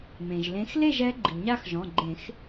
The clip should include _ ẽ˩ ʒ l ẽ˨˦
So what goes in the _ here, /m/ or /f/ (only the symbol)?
m